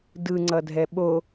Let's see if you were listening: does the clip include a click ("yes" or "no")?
yes